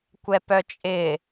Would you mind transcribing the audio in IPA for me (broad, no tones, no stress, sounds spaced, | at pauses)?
kʷ ɛ p œ t͡ʃʼ ɪ